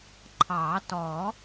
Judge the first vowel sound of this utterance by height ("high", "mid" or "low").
low